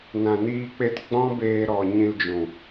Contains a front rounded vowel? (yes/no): no